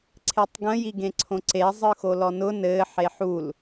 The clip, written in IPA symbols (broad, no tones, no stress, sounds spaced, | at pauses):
ǀʰ e tˤ ɡ ə̃ j i ɡ ẽ ǀʰ õ ǀ e zˤ ɯ x o l ɔ n ʊ n ɘ ħ e ħ u l